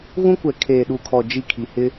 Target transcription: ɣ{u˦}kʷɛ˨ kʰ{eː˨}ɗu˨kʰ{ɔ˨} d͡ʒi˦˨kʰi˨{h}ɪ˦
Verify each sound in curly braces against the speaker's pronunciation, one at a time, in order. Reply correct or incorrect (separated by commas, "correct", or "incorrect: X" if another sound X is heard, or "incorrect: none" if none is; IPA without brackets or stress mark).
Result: incorrect: ũ˦, correct, correct, correct